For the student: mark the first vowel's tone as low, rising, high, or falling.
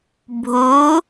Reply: rising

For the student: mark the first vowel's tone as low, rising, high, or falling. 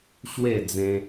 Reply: falling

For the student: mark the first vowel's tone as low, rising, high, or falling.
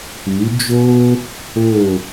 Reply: rising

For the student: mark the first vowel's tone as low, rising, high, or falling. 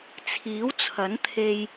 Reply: rising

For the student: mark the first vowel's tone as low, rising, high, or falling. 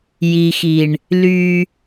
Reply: low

